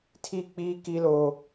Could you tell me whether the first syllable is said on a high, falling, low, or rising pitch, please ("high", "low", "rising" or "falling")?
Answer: high